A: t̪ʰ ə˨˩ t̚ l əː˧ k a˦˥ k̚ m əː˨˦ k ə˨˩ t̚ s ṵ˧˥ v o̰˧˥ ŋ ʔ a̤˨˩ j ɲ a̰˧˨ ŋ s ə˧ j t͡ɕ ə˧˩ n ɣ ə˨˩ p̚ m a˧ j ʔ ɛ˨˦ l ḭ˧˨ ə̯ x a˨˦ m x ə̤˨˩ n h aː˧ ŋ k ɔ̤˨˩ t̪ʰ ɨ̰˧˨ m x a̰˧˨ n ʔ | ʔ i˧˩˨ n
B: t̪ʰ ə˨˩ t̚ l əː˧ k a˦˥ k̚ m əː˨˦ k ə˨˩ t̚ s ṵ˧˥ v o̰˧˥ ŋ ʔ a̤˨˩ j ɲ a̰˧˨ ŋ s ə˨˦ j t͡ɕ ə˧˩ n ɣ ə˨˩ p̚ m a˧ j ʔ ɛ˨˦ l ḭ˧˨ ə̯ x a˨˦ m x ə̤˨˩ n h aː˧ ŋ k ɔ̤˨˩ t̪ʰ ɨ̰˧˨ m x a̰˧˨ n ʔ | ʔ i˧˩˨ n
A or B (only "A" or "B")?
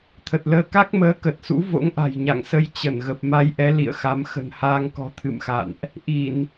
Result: A